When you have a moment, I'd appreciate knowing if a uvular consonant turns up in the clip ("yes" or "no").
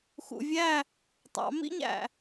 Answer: no